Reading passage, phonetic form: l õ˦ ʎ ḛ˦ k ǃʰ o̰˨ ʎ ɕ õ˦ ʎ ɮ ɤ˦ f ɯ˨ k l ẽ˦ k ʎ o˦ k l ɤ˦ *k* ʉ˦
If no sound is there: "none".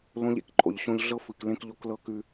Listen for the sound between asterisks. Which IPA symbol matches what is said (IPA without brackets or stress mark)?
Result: k